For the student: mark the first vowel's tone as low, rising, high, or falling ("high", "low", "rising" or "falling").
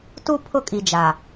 high